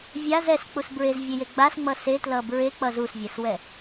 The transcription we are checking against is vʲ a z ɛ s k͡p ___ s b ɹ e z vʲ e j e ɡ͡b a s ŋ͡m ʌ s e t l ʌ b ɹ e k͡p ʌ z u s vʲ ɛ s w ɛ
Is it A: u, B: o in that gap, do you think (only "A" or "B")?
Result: A